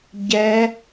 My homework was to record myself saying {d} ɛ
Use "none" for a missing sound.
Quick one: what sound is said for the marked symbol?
ɟ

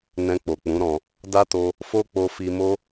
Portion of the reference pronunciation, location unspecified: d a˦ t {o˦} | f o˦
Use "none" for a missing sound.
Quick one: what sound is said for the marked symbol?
o˧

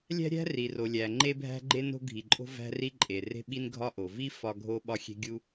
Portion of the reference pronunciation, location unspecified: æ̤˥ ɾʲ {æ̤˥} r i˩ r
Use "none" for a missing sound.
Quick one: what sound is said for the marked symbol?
æ̤˥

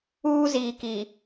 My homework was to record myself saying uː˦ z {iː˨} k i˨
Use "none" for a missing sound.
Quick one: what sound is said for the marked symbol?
iː˨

